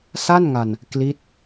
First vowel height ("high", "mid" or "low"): low